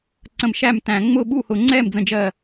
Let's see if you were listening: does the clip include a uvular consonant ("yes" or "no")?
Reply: no